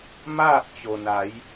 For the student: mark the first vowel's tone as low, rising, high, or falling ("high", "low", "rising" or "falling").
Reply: falling